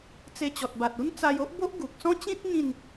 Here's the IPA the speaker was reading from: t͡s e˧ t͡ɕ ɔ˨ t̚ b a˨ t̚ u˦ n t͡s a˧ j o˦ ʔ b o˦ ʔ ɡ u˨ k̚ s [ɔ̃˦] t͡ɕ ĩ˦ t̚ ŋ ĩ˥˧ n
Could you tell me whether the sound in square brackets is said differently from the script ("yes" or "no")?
no